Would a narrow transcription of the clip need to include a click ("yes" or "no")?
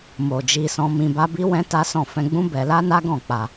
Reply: no